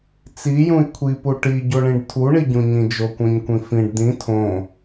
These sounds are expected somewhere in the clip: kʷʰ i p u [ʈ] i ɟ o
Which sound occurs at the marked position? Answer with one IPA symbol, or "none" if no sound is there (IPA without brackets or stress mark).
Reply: ʈ